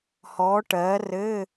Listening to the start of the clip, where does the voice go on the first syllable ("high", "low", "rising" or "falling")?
rising